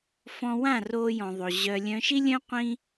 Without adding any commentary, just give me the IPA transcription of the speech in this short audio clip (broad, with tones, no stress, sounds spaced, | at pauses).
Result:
f ɔ̃˧ w ã˦˨ r oː˧ j ɔ̃˨ ðˤ o˨ ʑ œ˧ lʲ œ̃˧ ʃ i˦ lʲ œ̃˦ qʷ ĩ˦